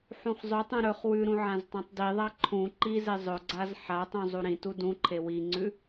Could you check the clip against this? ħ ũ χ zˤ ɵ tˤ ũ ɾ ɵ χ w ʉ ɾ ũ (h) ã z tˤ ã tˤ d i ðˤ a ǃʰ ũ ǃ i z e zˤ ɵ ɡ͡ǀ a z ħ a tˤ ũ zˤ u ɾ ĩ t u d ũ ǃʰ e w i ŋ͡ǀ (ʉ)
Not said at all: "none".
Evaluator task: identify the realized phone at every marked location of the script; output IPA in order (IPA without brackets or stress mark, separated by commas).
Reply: ʕ, ʉ